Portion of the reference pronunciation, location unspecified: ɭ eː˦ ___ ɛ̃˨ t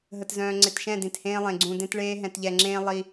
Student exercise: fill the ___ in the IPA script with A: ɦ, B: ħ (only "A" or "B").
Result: A